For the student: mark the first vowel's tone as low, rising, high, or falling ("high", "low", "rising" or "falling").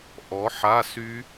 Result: rising